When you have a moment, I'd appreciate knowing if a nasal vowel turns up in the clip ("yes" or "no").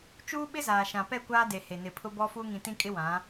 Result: yes